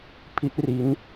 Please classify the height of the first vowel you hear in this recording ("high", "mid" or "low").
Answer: high